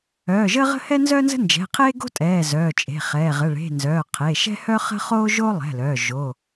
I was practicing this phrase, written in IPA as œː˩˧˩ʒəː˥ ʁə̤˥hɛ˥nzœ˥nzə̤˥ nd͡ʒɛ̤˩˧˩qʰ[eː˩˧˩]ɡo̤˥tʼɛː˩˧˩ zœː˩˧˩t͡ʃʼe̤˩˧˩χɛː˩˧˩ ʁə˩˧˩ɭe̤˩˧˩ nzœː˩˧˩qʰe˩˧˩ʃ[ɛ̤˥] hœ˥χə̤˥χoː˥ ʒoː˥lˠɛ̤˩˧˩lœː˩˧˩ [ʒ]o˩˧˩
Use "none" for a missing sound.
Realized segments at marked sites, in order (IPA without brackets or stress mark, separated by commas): eː˥, ɛ̤˥, ʒ